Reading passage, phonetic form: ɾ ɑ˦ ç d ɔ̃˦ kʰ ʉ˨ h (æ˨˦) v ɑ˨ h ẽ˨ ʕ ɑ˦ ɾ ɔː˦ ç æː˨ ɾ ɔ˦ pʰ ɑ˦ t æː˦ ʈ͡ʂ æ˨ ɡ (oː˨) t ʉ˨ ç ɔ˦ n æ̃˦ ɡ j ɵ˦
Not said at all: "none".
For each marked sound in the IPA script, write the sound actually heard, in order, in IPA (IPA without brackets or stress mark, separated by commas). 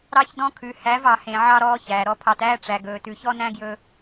æ˨˦, ɵː˨